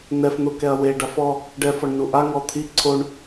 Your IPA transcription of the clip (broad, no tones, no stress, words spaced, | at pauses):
n̪ɛfn̪ʊkɛɐ̯ we ɖafɔ | ɖɛfɔɳ nuʔa ŋɔt̪ʰi ǀʰoɳ